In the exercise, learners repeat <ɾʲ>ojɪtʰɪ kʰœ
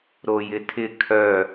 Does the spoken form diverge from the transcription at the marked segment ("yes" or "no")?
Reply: yes